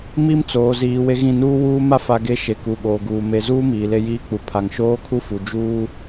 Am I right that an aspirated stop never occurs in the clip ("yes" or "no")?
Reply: no